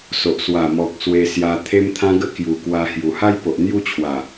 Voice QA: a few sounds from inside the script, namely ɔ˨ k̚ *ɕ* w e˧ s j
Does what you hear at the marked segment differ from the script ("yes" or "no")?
yes